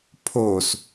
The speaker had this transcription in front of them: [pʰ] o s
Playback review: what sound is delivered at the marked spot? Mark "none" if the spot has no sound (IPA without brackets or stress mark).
pʰ